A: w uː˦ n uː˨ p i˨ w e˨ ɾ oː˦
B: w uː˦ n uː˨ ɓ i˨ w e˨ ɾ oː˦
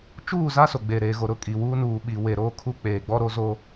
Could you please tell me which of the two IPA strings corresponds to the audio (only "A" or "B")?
B